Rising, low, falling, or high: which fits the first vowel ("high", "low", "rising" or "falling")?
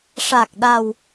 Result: low